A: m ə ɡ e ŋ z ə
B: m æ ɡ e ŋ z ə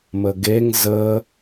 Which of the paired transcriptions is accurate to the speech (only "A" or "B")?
A